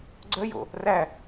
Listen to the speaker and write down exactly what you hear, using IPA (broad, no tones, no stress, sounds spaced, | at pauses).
ɡ͡ǀ œ j o̰ | r æ